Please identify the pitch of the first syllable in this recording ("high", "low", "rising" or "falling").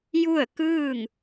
falling